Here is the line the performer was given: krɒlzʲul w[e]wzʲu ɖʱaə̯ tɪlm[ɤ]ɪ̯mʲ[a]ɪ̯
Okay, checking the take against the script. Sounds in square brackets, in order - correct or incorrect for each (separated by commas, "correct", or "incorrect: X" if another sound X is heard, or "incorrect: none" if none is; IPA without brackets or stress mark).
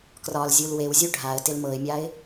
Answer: correct, correct, correct